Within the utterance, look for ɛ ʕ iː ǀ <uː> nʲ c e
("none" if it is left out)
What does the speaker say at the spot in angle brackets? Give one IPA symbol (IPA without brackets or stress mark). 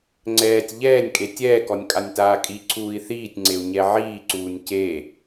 uː